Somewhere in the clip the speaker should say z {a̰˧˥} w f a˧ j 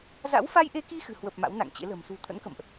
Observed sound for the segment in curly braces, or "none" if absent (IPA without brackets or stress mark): a̰˧˥